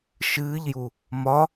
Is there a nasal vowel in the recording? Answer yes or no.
no